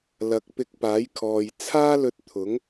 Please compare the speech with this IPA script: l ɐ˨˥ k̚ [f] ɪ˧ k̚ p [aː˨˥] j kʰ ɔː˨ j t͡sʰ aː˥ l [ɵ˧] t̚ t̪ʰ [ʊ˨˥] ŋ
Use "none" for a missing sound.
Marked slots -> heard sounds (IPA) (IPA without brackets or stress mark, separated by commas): p, aː˨˥, ɵ˧, ʊ˨˥